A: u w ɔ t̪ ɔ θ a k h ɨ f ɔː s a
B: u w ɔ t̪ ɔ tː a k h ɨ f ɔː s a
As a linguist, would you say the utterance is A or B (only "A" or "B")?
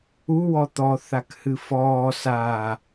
A